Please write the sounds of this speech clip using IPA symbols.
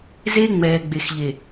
ze˦ ŋ͡mɛː˨ɡ͡be˨xʎe˨

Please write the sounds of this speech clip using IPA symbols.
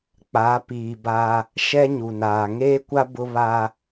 k͡pa˨˦piː˨ba˦ | ʃɛ˦ɲu˨naː˨ ŋeː˦kʷa˦ bʊ˦ βa˦

